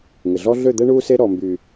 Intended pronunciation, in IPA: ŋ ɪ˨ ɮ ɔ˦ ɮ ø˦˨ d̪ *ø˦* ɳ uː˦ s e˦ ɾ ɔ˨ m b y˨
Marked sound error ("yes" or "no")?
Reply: yes